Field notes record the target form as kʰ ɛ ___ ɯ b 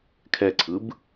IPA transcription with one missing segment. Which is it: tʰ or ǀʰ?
ǀʰ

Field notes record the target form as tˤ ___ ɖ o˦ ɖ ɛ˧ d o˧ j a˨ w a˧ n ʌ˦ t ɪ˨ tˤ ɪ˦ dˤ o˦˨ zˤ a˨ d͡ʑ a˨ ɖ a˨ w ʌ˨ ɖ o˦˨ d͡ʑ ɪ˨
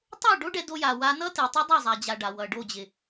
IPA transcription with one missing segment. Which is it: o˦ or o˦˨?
o˦˨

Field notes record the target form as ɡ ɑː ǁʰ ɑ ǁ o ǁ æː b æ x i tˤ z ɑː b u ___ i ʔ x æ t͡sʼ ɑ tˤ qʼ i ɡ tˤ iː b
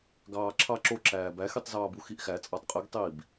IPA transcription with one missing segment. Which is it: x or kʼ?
x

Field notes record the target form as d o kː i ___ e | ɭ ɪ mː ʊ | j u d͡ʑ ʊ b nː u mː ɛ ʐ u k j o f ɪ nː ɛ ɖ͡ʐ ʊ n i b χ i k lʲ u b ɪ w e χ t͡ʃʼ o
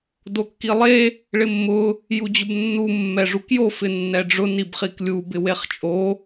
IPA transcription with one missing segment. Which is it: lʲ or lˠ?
lˠ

